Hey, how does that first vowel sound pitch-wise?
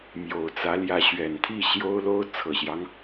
low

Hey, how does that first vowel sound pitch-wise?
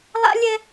high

